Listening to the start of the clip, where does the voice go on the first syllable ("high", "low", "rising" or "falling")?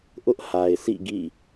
high